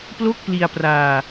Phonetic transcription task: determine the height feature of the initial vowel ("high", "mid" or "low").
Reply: mid